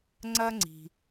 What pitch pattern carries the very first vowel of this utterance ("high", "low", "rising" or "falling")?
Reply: high